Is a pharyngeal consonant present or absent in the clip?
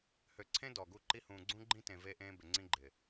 absent